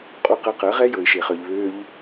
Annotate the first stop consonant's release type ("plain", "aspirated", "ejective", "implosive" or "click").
ejective